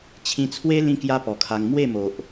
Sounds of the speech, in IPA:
t͡ɕʰĩ˧t͡sʰwe˦ lĩ˦kja˦pɔ˨˩kʰa˧ŋ mwe˥˧mo˨ʔ

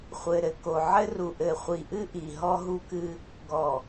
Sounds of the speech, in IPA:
χʷɘ˨ ɾɘ˨ko˨ ʕɘ˦ru˨ ʔɘ˨χʷi˨ʔɨ˦ ʔi˨ ɦɔ˦ɦu˦kɨ˦ | ɡɔ˨

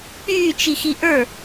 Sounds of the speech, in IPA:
k͡pyː t͡ʃixiʔə˞

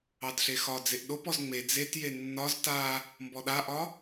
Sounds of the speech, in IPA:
ɑdɬexɒ d͡zeʔɗopɔz ŋ͡me d͡zetje nːɒz ta | mbɔɗaʔɒ

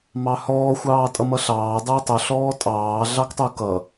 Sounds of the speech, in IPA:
mɑhɔː xʷɑːtʼʌmʌɬɑː dˤəːtˤʊ ɬɔːtʼɑː ɮɑktˤukʌ

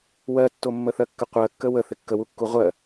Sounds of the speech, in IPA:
wɜtːomːə θɜkːəqʷɜkːə wə θɪkːəwukːu ʁʷɜ

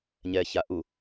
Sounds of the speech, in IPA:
ɲɛːçaʔu

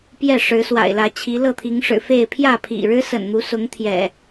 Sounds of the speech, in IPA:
pjɛ˥˨ ʂɻ̩˨˦swa̰˨˩ɪ̯lä˨˦t͡ɕʰi˨˦ lɤ˥˨t̪ʰi˨˦ŋʂɻ̩˨˩fe˥˨ɪ̯ pʰjä˥˨pʰḭ˨˩ɻɻ̩˦ sə̰˨˩nn̪u˨˦sʊ˨˦ŋt̪ʰjɛ̰˨˩

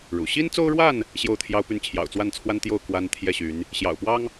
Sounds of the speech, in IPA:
ɻṵ˨˩ ɕi˦nt͡so˦ʊ̯ɻwa˥˨n | ɕjo˥˨ʊ̯t̪ʰjɑ˦ʊ̯py˥˨n t͡ɕʰjɑ̰˨˩ʊ̯t͡swa˥˨nt͡sʰwa˦nt̪jo˥˨ʊ̯ kwa˦n t̪ʰjɛ˥˨ɕy˨˦n | ɕjɑ̰˨˩ʊ̯pwɑ˦ŋ

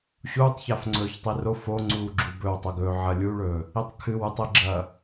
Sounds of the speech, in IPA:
ɕuːtˤçaf ŋ͡ǀɵːçtˤiro foŋ͡ǀuːɡ͡ǁu bɵwtˤɐɡɵː ʕɐlʲuɭɵː | itˤkʰɨw ʉtˤeɡ͡ǁɐː

